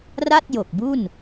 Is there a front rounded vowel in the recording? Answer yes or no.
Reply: no